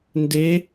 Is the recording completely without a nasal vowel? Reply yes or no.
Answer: yes